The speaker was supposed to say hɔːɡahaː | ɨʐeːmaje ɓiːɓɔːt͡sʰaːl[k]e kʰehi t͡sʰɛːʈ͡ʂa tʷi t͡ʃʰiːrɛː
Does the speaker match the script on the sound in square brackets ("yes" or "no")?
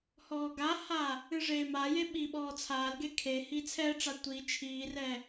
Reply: no